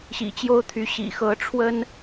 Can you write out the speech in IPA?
ɕ ḭ˨˩ t͡ɕ j o˥ ʊ̯ t̪ʰ y˧˥ ɕ ḭ˨˩ x ɤ˧˥ ʈ͡ʂʰ w ə˥ n

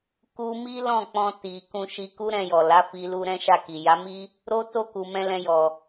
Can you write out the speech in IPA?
k u˦ m i˦ l ɔ̃˦˨ k͡p ɔ̃˧ t i˨ k ũ˧ ʃ i˧ k u˦ ɾ ɛ̃˧ j ɔ˨ l a˨˦ f i˧ l u˧ ɾ ɛ̃˦ ʃ a˦˨ k i˨ j a˨˦ m i˦ | ɾ o˦ t o˦˨ k u˨ m ɛ̃˧ l ɛ̃˧ j ɔ˨

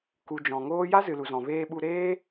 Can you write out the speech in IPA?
k u˨ d͡ʒ ɔ̃˨ ŋ oː˦ j a˦ z ɨ˨ l u˨ z ɔ̃˨ v eː˧ ɓ u˧ ɾ eː˦

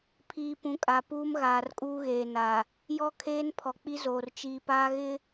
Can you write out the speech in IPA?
pʰ iː˨ p ũ˨˦ kʼ a˨ p uː˦ m ɣ aː˨ r kʼ uː˦ ɣ eː˨ n a˨ | j ɔ˦ kʰ eː˦ n pʰ ɔ˨ k͡p i˦ z oː˨ r t͡ʃ iː˨ p aː˦ ɣ ɪ˦

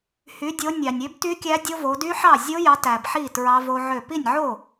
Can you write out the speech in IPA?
h y˨˦ dʲ o˨˦ nʲ ɑ˨ nʲ ø˦˥ b t y˦˥ kʲ æ˦˥ dʲ o˦˥ v o˨˦ d y˦˥ ħ ɑ˥˩ zʲ o˦˥ j ɑ˨˦ t æ˨ b ħ i˥˩ t ɹ ɑ˦˥ v o˦˥ ʕ ø˥˩ p i˥˩ nʲ ʕ o˥˩

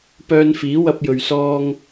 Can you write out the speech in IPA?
p œː˧ n f iː˨˥ w ɐ˧ p̚ j ɵ˨ ɥ s ɔː˧ ŋ

